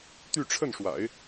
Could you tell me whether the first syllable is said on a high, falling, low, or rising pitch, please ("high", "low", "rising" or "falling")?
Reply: falling